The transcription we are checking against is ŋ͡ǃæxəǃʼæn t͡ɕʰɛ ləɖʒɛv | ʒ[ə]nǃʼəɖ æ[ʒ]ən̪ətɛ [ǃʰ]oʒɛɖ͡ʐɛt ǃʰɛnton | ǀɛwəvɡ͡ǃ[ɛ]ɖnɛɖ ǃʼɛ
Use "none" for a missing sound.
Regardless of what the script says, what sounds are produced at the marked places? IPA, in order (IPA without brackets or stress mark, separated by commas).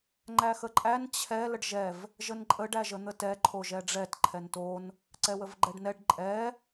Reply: ə, ʒ, ǃʰ, ɛ